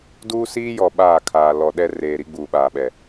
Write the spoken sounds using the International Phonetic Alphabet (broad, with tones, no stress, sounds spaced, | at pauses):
d uː˦ s iː˦ j ɔ˨ ɓ aː˦˨ kʰ aː˨ l ɔ˨ ɗ ɛ˦ r eː˨ ɾ i˦ ɡ͡b uː˨ ɓ aː˨ ɓ ɛ˨